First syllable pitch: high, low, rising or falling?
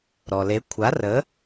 low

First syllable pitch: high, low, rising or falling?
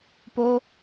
high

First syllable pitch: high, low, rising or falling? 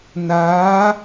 rising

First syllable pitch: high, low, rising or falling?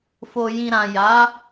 low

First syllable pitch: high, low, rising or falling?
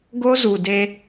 high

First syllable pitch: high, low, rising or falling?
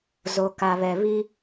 low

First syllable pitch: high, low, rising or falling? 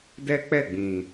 high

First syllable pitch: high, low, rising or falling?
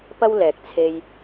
high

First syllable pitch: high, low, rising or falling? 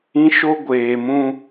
high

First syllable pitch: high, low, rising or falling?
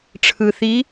low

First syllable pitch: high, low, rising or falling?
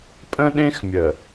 high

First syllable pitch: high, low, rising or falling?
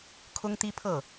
high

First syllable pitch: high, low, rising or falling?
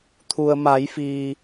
low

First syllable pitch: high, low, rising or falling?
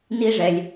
high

